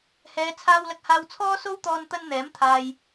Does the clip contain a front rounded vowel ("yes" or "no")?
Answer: no